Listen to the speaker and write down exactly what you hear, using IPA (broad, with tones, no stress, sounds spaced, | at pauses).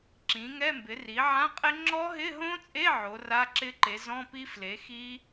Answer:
ǁ ĩ˩˥ ŋ ɛ˧˥˧ m b ɪ˩˥ r i˩˥ ʕ ã˧˥˧ qʼ ɪ˦˥ ŋ͡ǁ ɔ˦˥ ɦ ɪ˧˥˧ ɦ õ˦˥ t͡sʼ e˧˥˧ ʕ o˩˥ r a˧˥˧ ǁ ɪ˦˥ ǃ e˩˥ z ɔ̃˧˥˧ p i˦˥ f l e˩˥ x i˦˥